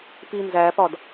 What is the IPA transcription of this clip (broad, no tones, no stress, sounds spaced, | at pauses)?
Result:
p i n z æ p ɒ d